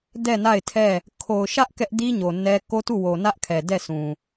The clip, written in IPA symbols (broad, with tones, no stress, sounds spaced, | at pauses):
d ɛ˦˨ n a˦˨ ɪ̯ tʰ ɛ˦˨ | kʰ o˨ ʊ̯ ʃ ä˦ ʔ k ɛ˦ ʔ d i˦ ɲ o˨ n ɛ˦ k o˦ t u˦˨ w o˨ n ä˦ ʔ kʰ ɛ˨ d ɛ˦˨ s ũ˨